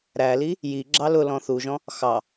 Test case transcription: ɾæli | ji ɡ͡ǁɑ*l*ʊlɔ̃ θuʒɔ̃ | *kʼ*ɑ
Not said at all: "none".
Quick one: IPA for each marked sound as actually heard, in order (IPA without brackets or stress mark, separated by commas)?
l, x